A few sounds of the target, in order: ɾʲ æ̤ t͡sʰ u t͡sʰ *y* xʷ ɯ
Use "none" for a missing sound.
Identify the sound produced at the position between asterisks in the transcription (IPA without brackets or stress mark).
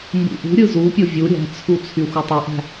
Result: y